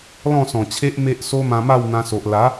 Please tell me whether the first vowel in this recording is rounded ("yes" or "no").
yes